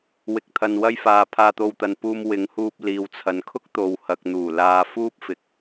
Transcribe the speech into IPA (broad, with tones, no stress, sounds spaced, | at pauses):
w ɪ˨ k̚ t̪ʰ ɐ˨ n w ɐ˥ j f aː˧ pʰ aː˧ t̪ o˧ w t̪ ɐ˨ n p uː˧ m w ɪ˨˧ ŋ h uː˧ p̚ l iː˨ w t͡sʰ ɐ˨ n kʰ ʊ˥ k̚ t̪ o˨ w h ɐ˨ k̚ n̪ uː˨˩ l aː˧ f uː˥ p̚ f ɪ˨˥ k̚